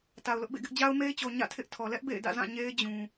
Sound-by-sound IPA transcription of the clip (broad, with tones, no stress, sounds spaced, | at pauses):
t a˨ ʊ̯ l ʊ˦ ʔ b ḛ˦˨ ɡ ɪ˦ ʔ d͡ʑ a˦ ʊ̯ m e˦ ɪ̯ t͡ɕ o˨ ɲ ä̰˦˨ tʰ ɪ˦ ʔ tʰ ɔ˨ l ɛ˦ ʔ b ḛ˦˨ ɪ̯ d ä̰˦˨ z ã˦˨ ɲ e˦ ɪ̯ d͡ʑ ũ˨